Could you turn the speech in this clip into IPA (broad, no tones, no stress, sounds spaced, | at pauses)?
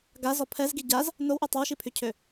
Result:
ɡ a z ɔ pʰ ɛ z ɡ i ɟ a z | n o w ʔ u tˤ œ w ʃ i pʰ y cʰ ø